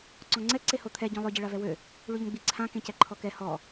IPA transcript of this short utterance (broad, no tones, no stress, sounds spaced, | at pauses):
ǀ ɔ̃ ŋ͡ǀ ɛ ǀ e h o t̪ʰ ɛ ɟ ɔ̃ lˠ ø ɟ e ɭ a v ɛ w ø | ɭ y ʎ ə̃ ɡ͡b i ǀʰ ã k ẽ c ɛ ǃʰ ɔ k ɛ h ɔ